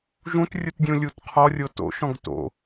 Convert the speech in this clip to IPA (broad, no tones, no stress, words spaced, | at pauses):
ʒũtrʲutdʲũlʲut qʰɔrʲo to̰ʃɔ̃ɡ to̰